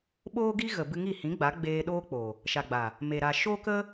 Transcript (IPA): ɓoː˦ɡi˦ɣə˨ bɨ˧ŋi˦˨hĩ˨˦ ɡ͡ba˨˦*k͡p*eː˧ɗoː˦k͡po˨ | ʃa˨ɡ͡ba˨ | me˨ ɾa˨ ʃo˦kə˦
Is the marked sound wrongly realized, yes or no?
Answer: yes